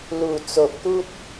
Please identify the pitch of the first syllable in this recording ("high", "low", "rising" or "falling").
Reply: low